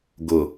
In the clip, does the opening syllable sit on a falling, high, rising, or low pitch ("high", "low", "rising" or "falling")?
low